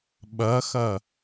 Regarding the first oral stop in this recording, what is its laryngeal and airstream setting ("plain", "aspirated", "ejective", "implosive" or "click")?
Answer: implosive